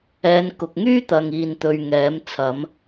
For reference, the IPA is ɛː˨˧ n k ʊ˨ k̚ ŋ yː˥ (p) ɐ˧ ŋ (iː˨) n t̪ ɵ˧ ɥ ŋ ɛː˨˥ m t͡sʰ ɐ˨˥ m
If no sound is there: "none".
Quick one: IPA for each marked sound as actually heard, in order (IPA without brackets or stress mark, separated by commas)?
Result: t̪, iː˧